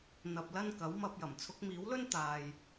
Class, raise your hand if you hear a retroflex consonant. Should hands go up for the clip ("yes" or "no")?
no